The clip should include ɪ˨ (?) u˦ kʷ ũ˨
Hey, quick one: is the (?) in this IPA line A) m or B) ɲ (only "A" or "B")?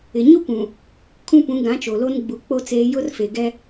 B